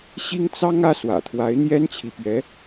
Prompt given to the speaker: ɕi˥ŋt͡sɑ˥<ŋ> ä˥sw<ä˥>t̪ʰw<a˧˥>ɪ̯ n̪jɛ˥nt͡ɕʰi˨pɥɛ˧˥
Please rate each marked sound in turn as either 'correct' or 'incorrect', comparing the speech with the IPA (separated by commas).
correct, incorrect, correct